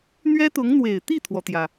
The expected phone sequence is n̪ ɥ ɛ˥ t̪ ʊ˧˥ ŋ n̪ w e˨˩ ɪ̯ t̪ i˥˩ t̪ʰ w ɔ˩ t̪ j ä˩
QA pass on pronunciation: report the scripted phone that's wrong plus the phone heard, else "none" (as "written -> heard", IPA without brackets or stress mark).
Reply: none